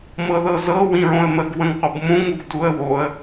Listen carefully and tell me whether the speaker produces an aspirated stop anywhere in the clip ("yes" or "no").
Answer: no